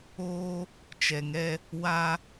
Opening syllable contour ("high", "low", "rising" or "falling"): high